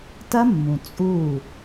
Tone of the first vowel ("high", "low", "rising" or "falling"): high